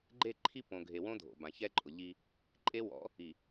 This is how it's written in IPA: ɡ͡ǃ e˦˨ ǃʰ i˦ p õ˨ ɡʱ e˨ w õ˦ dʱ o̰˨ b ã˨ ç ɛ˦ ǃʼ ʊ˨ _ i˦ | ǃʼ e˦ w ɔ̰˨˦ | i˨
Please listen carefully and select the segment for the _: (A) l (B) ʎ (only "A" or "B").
B